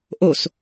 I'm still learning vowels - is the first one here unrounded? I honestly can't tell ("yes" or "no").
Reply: no